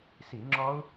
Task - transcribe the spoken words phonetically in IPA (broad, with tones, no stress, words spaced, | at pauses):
si˧˩˧ŋ͡ǁɔ˦˥u̯